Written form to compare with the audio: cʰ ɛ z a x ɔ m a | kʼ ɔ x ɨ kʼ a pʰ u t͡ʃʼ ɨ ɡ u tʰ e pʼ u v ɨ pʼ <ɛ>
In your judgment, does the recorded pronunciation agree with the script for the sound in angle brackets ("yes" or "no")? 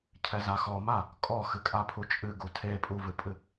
no